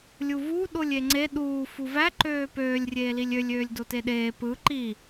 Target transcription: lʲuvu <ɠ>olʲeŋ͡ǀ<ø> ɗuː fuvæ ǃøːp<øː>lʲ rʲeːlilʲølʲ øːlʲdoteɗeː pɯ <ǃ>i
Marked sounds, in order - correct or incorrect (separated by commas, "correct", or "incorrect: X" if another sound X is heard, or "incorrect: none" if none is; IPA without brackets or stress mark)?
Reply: incorrect: ɗ, incorrect: e, correct, correct